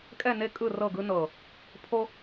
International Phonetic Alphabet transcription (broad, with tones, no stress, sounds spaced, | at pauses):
kʼ ɛ˦˨ n e˦ kʼ ɯ˦˨ r ɤ˦˨ ɡ ɯ˦ n ɤ˨ | pʰ o˦